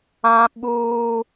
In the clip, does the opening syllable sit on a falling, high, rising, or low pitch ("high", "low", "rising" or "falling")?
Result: high